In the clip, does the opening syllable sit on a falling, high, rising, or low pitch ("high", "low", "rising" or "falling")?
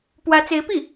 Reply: rising